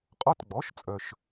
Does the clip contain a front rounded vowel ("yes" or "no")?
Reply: yes